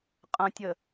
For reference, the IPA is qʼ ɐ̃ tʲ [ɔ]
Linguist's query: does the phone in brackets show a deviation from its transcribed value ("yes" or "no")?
yes